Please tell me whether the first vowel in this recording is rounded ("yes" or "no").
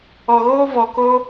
yes